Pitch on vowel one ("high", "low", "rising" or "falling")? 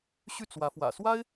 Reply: falling